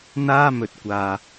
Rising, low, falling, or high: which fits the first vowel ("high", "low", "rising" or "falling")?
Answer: high